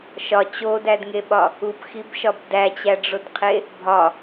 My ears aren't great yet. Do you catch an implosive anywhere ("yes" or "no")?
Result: yes